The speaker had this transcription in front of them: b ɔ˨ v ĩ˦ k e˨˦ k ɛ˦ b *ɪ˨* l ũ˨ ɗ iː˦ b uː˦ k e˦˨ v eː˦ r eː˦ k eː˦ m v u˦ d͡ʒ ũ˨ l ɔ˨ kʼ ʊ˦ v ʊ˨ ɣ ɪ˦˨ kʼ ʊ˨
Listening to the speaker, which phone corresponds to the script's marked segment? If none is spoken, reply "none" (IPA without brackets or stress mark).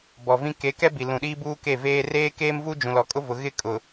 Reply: i˨